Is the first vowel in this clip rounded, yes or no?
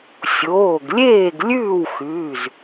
yes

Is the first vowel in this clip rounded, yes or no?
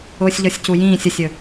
yes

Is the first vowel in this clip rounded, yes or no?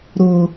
yes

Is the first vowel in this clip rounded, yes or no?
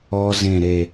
yes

